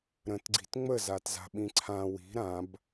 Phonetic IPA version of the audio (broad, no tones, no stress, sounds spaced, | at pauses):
ɾ ə̃ t ɡ͡ǀ i̤ t ŋ͡m ə z a t z a̤ ɓ ĩ ǀʰ ã w i̤ ɾ ã b